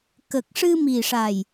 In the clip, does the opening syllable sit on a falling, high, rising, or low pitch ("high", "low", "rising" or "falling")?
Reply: low